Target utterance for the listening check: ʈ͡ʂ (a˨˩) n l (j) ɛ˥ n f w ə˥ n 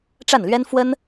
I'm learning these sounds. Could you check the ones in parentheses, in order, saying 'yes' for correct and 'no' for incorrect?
no, no

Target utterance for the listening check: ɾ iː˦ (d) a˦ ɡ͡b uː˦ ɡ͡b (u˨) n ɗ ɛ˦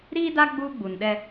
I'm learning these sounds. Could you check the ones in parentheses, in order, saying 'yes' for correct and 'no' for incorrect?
yes, yes

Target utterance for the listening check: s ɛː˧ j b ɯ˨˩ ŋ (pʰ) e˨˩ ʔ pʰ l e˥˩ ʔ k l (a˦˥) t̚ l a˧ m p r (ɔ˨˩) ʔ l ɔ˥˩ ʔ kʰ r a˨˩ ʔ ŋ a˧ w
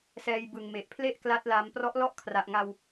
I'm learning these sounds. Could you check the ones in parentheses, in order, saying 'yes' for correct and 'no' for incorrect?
no, yes, no

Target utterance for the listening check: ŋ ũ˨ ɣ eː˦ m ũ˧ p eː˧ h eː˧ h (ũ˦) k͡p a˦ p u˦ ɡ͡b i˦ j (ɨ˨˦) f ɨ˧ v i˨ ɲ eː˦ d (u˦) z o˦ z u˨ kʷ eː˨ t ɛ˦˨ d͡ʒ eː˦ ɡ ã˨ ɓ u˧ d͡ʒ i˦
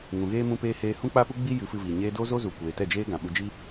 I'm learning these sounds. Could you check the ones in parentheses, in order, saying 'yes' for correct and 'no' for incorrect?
yes, yes, no

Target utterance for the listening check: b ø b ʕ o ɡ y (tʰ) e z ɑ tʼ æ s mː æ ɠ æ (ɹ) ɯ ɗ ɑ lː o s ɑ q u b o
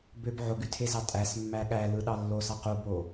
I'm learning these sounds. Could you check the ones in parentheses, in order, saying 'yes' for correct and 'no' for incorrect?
yes, no

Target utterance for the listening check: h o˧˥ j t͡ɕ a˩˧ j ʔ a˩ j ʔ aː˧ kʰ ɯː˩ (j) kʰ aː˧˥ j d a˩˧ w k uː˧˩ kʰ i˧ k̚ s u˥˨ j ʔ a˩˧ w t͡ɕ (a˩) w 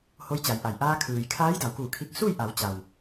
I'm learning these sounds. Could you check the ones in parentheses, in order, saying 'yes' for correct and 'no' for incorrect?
yes, yes

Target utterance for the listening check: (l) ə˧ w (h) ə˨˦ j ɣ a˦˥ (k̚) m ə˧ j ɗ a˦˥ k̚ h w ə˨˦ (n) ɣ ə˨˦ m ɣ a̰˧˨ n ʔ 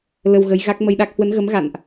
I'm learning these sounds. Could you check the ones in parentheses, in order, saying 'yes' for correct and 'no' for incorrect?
yes, no, yes, yes

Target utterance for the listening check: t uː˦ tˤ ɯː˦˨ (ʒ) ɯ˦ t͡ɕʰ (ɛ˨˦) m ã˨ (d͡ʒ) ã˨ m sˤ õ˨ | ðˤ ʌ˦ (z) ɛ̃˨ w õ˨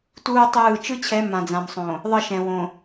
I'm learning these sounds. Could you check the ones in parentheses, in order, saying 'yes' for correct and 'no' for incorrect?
no, yes, no, no

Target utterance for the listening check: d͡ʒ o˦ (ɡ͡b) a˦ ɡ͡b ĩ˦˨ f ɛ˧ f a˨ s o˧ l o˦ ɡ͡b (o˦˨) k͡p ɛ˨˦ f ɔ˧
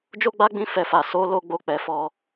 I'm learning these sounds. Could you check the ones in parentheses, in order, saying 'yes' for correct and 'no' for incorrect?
yes, yes

